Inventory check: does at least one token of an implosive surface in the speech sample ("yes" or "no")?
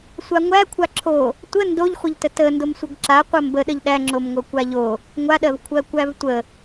yes